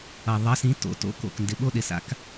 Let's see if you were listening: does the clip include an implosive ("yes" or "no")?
yes